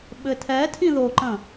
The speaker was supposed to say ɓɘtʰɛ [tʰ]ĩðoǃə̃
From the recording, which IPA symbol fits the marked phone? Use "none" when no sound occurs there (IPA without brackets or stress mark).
tʰ